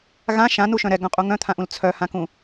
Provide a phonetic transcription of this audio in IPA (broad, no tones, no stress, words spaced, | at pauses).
ɣã ʃãnuʃœ̃ ɾɛɡœ̃qʼu ŋœ̃t̪ʰãʔũl t͡sʰœhãkũ